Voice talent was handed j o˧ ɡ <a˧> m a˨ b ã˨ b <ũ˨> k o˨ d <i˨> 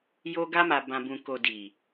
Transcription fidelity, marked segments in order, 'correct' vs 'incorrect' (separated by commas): correct, correct, correct